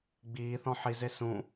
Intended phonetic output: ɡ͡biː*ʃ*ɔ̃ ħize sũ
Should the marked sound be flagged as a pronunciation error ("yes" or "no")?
yes